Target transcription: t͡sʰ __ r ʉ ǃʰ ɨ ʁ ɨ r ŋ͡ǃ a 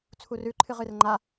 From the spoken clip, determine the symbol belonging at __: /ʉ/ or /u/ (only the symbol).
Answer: u